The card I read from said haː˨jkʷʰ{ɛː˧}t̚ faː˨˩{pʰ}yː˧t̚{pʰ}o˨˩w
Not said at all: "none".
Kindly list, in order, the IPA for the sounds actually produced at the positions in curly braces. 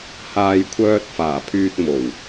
œː˧, pʰ, m

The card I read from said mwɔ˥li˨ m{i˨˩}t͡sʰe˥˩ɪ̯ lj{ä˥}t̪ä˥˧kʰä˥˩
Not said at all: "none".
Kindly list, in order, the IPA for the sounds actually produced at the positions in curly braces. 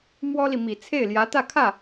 i˨˩, ä˧˥

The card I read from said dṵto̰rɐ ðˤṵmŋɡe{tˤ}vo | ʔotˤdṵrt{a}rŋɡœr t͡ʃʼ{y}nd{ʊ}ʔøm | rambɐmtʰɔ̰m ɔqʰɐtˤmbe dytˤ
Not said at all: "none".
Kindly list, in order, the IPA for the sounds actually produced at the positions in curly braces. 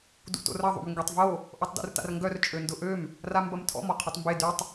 tˤ, a̰, ø, ʊ

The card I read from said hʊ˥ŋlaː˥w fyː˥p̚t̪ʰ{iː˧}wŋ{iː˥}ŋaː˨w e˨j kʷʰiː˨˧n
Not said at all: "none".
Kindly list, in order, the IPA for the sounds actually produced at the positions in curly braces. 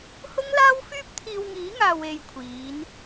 iː˧, iː˨˥

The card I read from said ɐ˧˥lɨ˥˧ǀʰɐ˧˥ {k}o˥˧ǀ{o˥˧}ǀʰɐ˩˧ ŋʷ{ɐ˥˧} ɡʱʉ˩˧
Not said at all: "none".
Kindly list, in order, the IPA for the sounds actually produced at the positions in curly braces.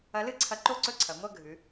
ǃ, ɵ˥˧, ɐ˥˧

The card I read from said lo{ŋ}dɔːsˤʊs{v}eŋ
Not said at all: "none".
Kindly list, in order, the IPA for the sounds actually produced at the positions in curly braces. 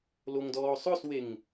ŋ, w

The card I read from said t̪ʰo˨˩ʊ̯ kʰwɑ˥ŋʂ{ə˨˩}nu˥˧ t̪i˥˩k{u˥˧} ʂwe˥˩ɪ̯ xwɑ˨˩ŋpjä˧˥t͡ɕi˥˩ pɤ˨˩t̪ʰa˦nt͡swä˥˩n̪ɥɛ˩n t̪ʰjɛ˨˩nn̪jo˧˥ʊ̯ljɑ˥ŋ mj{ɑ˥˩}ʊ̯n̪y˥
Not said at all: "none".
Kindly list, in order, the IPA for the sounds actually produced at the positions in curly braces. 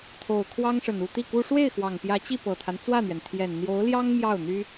ə˨˩, u˥, ɑ˥˩

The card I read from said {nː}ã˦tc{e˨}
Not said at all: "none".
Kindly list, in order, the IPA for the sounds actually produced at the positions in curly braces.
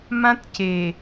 m, e˨

